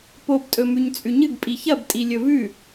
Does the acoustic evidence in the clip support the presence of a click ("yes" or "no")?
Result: no